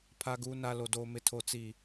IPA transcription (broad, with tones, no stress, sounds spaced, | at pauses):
pʰ a˦ ɡ uː˦ n a˦ l o˨ d oː˨ m ɪ˨ tʰ o˨ t͡s i˨